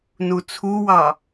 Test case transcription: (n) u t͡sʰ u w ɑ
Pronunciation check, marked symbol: correct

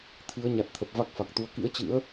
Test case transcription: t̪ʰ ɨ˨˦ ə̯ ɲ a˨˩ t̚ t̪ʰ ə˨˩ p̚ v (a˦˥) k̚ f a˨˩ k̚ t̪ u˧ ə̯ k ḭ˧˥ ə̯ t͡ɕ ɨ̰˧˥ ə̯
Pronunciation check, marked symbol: correct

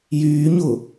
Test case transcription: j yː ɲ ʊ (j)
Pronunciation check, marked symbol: incorrect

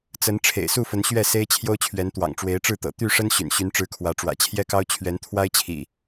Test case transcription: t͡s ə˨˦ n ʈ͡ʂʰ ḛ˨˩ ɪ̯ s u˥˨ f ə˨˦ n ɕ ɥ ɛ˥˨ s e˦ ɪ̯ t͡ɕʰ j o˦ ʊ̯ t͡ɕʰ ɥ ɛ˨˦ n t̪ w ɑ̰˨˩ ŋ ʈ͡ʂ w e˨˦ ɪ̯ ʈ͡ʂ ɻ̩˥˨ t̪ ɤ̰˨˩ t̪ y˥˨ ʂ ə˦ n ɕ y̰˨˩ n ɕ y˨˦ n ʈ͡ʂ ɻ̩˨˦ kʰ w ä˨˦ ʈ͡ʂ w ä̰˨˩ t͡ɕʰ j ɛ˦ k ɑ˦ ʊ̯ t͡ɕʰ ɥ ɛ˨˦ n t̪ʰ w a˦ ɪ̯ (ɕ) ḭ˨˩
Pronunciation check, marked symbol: incorrect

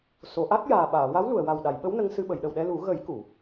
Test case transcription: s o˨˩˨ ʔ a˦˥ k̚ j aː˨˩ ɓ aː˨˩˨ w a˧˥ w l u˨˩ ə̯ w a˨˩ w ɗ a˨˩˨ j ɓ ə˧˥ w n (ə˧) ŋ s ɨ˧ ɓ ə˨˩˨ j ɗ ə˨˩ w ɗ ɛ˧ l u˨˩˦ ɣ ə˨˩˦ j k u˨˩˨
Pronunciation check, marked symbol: correct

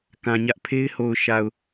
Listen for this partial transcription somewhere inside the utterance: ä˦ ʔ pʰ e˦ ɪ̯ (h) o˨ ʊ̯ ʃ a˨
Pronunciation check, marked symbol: correct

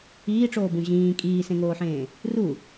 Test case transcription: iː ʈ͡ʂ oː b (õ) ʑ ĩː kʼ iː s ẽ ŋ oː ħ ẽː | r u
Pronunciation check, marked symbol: incorrect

